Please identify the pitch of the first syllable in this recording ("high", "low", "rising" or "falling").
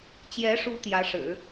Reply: rising